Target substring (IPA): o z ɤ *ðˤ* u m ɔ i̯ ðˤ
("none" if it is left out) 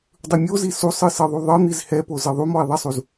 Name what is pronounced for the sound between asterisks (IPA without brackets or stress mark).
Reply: ðˤ